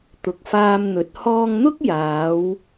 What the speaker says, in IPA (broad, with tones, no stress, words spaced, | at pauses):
t̪ʊ˨k̚ faː˧mn̪ɵ˨˥t̚ hɔː˧ŋn̪ʊ˥k̚jaː˨˧w